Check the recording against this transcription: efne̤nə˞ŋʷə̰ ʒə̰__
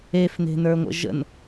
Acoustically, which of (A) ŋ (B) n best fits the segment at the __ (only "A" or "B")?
B